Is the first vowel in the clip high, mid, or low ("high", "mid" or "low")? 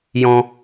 mid